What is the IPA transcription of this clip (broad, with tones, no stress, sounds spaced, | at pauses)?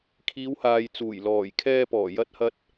kʰ iː˨˧ w h aː˨ j t͡s uː˨˩ j l ɔː˨˩ j kʰ ɛː˧ p ɔː˨˩ j ɐ˧ t̚ h ɐ˧ t̚